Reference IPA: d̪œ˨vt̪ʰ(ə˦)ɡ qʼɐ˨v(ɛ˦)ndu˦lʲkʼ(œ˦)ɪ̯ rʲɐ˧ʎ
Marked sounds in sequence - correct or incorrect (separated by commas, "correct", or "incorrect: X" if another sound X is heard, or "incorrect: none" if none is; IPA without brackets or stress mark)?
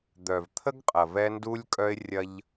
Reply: correct, correct, correct